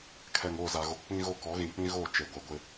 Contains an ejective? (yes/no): no